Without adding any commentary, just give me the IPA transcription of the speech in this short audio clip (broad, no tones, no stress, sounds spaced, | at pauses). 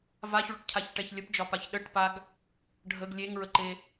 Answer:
v a ç ɭ ɵ ʈ cʰ a ç ʈ ɛ ç lʲ ə p d͡ʒ ɒ p a ç ɗ ə ʈ p a ɡ | ɖʱ ə ɡ lʲ e ŋ ɹ ə ǃ e